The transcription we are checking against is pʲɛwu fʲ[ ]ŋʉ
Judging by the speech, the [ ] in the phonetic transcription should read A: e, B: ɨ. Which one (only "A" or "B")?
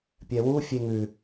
A